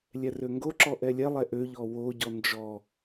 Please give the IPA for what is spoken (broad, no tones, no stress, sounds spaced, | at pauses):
lʲ ɛ r ø ŋ ɡ o ǁ ɔ ʔ ɛ lʲ ɛ lˠ ɛ ʔ ø ʎ ɔ w o ɟ ɔ n d͡ʒ ɔ